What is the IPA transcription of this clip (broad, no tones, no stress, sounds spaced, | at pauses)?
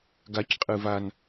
ɡ a c qʼ ɨ v a n